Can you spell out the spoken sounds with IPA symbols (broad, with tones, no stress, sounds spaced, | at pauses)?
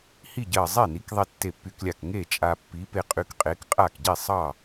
h i˥˨ ɟ ɜ˧˩ zˤ e˥˨ n i˨˥ k ðˤ i˧ tː e˧˩ pː y˧ k lʲ a˧˩ k ŋ e˥˨ t͡ʃʼ a˧ pː i˨˥ p e˧ qʼ y˧ k qʼ e˨˥ k qʼ a˥˨ k ɟ i˥˨ sˤ ɑ˥˨